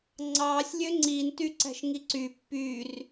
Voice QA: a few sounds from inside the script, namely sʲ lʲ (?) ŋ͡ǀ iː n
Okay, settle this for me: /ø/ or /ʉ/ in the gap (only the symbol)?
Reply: ø